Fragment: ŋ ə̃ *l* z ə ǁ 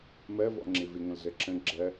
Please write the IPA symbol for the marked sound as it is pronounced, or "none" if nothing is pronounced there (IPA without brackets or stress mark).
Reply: l